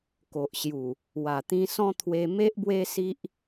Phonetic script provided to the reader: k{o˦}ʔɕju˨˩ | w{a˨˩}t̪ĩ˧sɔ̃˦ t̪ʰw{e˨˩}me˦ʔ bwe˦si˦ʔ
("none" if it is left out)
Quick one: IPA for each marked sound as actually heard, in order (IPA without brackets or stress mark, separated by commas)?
o˨, a˨˩, e˧